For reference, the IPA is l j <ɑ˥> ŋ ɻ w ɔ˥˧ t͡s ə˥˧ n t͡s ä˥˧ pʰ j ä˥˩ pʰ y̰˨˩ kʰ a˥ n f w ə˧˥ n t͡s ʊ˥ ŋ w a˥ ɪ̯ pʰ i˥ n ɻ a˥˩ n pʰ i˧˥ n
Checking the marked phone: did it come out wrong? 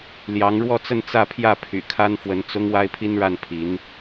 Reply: yes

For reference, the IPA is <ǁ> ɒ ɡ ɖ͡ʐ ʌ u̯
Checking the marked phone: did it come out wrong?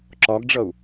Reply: no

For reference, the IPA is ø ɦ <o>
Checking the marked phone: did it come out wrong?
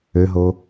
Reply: no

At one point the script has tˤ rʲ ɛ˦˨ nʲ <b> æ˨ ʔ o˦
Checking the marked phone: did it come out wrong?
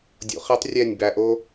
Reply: no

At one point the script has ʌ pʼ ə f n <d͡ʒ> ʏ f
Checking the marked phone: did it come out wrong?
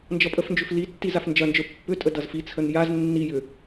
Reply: no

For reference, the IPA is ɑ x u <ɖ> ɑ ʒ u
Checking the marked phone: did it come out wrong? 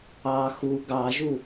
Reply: yes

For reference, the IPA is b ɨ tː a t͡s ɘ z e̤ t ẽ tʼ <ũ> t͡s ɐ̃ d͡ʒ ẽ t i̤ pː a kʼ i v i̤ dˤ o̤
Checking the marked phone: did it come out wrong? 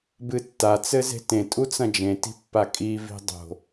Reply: yes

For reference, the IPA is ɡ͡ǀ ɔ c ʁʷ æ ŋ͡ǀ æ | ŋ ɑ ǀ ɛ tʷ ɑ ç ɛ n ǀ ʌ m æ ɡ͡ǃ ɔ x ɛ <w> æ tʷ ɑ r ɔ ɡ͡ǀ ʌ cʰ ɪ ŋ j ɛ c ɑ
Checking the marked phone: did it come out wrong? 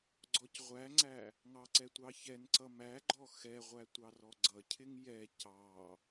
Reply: yes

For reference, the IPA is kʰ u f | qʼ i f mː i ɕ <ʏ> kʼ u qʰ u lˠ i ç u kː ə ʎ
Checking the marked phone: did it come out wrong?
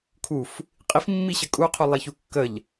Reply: yes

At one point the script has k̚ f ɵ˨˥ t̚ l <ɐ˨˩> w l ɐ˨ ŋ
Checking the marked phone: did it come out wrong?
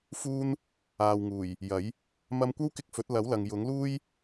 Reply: yes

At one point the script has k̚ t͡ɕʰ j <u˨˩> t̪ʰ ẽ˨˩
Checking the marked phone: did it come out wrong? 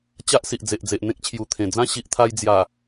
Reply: no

